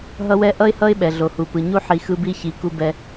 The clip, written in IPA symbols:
ɦ ʌ˦ w ɛ˦ ʔ ʌ˦ ɪ̯ h ʌ˦ ɪ̯ ɓ ɛ˨ ɮ o˨ h u˨ p ɯ˨ ɲ u˦ ħ i˨ x ɯ˦ b i˦ ç i˨˦ k u˦ b ɛ˦

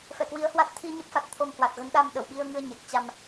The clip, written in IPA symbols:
f ɛ˧˩ k w i˨˦ ə̯ h w a˦˥ t̚ t̪ʰ i˧ ɲ ə˦˥ p̚ f a˨˩ t̚ t̪ʰ o˧ m h w a˨˩ t̚ ɣ ə˨˦ n ɗ a˧ m ɗ ə˧˩ w ɓ i˧ ə̯ ŋ ɨ˧ ə̯ ɲ ɛ˨˩ k̚ t͡ɕ a˧ m

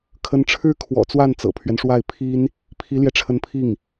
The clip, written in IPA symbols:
kʰ ə˧˥ n ʈ͡ʂʰ ɻ̩˥ kʰ w ɔ̰˨˩ t͡s w a˥˩ n t͡s ɤ̰˨˩ pʰ ɥ ɛ˦ n ʂ w a˥˩ ɪ̯ pʰ i˥ n | pʰ i˧˥ l j ɛ˧ ʈ͡ʂʰ ə˧˥ n pʰ i˥˩ ŋ

